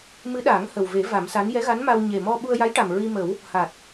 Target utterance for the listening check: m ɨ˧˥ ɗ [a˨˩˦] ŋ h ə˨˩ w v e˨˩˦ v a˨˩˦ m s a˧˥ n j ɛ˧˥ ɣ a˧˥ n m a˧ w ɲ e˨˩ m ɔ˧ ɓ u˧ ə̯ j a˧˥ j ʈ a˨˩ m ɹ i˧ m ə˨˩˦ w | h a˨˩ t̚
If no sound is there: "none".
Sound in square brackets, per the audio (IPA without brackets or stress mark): aː˨˩˦